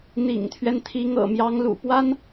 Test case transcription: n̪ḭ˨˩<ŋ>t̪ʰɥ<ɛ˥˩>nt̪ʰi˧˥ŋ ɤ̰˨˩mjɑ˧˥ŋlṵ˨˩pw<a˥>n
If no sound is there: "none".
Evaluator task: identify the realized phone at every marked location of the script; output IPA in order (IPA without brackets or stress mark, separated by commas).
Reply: ŋ, ɛ˦, a˥